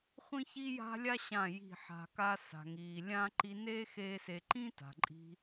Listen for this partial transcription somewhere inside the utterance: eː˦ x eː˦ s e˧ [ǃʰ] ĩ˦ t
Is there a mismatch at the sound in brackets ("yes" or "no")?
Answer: yes